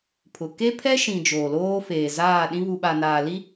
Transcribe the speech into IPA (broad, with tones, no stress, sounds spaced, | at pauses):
pʰ ʊ˨ k e˦ pʰ ɛ˦ ʃ ĩ˨ d͡ʒ oː˨ l oː˦ f eː˨ z aː˦˨ ɗ ĩ˦ β u˨ ɓ a˨ n aː˨ l i˦